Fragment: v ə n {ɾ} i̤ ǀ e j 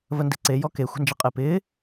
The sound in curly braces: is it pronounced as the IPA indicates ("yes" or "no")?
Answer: no